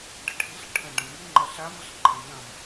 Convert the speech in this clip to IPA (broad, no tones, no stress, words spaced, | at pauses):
ɖəʈʰiɬ ʈʰə̃ ɖɐ̃miŋ͡ǃɐ ɬaməɬǃʰɐ̃ nɐ̃m